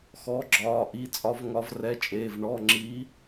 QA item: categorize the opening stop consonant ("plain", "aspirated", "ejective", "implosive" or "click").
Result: click